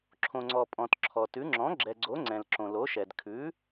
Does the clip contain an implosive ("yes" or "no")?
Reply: no